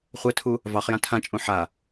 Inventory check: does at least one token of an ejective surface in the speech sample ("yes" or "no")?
yes